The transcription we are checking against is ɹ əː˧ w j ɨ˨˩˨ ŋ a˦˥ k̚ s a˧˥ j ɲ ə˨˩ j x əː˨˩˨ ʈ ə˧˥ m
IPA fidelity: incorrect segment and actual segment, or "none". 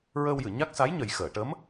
ŋ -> ɲ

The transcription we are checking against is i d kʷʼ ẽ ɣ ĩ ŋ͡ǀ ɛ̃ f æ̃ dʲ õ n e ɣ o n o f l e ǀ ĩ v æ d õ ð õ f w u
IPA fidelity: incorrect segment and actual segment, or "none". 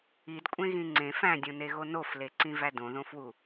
ɛ̃ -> ẽ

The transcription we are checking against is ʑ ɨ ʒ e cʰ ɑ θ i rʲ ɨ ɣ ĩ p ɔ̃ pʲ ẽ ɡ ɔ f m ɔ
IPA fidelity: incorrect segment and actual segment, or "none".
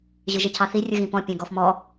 none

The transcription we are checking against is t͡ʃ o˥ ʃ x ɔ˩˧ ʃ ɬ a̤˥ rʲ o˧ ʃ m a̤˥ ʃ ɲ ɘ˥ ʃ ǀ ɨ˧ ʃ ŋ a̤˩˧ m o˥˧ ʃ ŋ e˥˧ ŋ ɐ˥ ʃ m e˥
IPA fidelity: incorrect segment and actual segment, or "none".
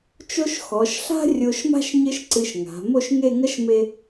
none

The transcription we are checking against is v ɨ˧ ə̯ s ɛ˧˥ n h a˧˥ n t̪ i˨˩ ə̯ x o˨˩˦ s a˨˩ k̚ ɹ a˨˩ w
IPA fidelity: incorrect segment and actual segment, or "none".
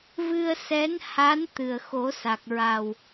i˨˩ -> ɨ˨˩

